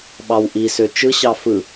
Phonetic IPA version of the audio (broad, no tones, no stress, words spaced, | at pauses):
ɓɑwʔisø t͡ʃɯɕɑ fɯ